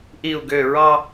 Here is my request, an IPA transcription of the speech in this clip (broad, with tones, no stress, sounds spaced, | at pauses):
ʔ i˥˧ u̯ ɡ ø˥˧ ɹ ɑ˥